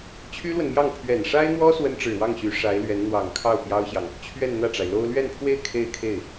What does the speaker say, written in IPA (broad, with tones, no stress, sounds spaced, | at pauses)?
t͡ɕʰ y˥ l w ə˨ n m j ɑ˥˩ ŋ pʰ ɥ ɛ˨˩ n ʂ a˥ ɪ̯ n̪ w ɔ˥ s w ə˥ n ʈ͡ʂ ɻ̩˨˩ w ɑ˥˩ ŋ ɕ y˧˥ ʂ a˧˥ ɪ̯ l ɥ ɛ˧˥ n n̪ w ɑ˨˩ ŋ kʰ ɑ˥˩ ʊ̯ p j ɑ˥ ʊ̯ ɕ j ɑ˨ ŋ | t͡ɕʰ ɥ ɛ˥˧ n n̪ ä˥˩ ʈ͡ʂ a˩ ɪ̯ l o˥ ʊ̯ l ɥ ɛ˥˧ n pʰ w e˥˧ ɪ̯ kʰ e˥˧ ɪ̯ kʰ e˥˩ ɪ̯